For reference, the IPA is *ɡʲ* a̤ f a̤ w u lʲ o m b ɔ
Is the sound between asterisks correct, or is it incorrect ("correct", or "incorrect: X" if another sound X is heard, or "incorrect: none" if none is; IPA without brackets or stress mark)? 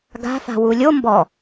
incorrect: ɡ